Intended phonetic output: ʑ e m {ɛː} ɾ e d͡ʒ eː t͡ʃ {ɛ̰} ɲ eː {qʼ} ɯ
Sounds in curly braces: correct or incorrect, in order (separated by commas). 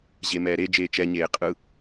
correct, incorrect, correct